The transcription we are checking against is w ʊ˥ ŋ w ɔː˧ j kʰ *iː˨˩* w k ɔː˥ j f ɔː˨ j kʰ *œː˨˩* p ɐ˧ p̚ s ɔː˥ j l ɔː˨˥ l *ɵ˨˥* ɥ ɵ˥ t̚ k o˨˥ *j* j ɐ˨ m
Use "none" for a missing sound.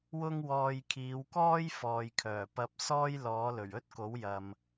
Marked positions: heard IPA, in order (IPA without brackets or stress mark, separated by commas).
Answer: iː˨˧, œː˨˩, ɵ˨˩, w